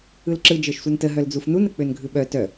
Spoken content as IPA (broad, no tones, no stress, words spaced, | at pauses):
ɯlǁɯ d͡ʒə˞ʃsʷœntə ɦœld͡zufnun ək͡pønɡʱɯɓœ tœ